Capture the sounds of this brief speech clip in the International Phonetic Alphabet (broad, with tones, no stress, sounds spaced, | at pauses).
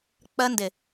k͡p ɜ˦ n d ɪ˨